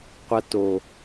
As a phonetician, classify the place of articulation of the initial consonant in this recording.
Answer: uvular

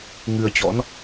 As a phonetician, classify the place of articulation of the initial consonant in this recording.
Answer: velar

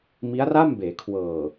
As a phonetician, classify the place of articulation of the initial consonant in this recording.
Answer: labial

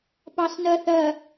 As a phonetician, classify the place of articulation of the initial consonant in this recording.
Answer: labial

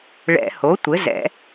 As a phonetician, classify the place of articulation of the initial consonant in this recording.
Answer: retroflex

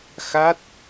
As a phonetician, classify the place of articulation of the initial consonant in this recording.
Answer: velar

